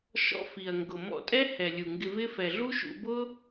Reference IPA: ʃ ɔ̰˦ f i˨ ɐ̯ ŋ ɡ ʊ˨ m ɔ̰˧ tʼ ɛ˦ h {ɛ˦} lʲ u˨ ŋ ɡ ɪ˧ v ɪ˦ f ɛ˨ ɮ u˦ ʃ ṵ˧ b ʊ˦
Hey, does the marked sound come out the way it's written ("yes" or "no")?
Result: no